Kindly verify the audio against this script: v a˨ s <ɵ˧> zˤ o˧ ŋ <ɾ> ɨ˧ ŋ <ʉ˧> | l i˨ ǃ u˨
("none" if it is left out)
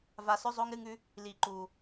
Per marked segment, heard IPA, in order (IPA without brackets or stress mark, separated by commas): ɵ˧, ɾ, ʉ˧